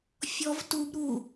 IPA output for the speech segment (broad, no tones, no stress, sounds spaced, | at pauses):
fʲ ɔ v t u b ɾ u